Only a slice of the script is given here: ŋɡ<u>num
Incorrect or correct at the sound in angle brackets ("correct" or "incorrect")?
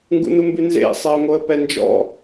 incorrect